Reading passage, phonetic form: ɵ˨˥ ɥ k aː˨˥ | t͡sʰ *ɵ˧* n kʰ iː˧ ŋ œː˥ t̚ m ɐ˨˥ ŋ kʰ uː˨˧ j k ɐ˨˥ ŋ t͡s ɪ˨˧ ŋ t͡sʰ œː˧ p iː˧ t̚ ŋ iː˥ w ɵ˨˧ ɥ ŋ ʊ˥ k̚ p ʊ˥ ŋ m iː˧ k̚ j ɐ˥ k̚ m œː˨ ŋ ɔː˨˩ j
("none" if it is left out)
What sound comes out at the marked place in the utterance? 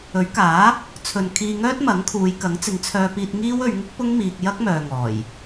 ɵ˨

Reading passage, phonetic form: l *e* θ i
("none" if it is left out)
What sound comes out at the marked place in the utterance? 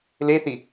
e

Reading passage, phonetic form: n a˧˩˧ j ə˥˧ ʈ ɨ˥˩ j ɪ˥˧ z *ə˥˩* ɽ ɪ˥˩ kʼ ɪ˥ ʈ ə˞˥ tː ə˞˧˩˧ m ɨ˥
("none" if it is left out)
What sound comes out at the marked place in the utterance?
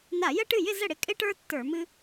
ə˥˩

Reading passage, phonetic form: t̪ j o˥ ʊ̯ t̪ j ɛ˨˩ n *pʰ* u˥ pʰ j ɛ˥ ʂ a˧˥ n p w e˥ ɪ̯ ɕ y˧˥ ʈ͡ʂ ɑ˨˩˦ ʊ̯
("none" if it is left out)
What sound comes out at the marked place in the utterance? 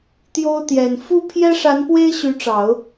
f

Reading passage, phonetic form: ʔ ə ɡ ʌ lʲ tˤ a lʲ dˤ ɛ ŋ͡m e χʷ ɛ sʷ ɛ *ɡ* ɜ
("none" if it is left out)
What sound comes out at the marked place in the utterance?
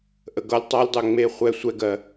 ɡ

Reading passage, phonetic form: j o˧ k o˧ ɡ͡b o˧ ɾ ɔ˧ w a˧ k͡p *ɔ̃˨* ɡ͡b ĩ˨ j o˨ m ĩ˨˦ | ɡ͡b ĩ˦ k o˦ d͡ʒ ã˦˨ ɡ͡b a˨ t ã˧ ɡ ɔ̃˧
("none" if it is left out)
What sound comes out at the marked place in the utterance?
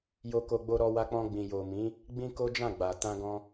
ɔ̃˧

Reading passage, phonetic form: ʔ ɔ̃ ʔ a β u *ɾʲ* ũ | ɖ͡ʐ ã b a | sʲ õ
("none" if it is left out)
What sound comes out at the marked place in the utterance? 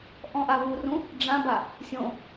r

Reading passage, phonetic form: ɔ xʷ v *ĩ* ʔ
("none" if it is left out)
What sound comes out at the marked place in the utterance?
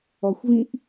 ĩ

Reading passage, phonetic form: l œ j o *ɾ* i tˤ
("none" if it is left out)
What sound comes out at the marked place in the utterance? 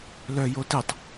t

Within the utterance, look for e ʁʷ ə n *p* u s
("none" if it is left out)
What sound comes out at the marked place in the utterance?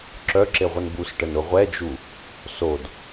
b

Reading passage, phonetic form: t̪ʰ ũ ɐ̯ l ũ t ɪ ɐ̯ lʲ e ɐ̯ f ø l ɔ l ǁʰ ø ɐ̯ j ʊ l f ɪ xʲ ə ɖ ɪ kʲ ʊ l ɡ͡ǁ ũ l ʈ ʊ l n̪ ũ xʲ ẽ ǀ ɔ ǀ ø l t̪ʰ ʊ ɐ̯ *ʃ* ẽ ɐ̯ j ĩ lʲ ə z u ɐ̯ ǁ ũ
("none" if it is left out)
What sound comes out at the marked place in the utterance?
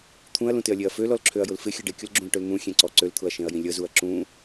ʃ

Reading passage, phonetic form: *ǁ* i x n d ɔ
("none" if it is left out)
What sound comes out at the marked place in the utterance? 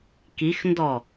k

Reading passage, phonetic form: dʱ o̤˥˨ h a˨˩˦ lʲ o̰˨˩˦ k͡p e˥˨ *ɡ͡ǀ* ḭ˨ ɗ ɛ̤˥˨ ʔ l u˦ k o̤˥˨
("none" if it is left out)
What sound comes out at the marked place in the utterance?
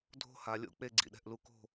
ɡ͡ǀ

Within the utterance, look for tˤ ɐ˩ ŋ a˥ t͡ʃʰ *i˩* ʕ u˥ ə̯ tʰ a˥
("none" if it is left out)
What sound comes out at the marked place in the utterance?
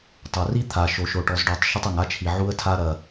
i˩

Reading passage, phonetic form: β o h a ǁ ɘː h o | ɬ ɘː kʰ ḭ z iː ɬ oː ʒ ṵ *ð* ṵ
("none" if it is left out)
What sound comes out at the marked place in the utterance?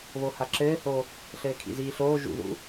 ð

